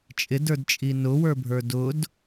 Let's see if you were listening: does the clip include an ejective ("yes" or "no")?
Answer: yes